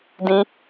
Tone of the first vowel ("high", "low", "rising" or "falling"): high